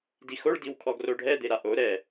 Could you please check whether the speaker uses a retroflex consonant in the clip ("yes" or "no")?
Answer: yes